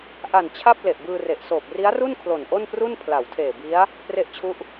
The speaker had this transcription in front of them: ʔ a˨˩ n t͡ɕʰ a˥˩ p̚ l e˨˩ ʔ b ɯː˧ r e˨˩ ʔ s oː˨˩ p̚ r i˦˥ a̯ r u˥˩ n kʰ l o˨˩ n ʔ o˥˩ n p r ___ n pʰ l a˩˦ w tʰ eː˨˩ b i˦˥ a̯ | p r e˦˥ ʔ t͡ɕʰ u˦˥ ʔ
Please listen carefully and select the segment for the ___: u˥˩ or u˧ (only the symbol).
u˥˩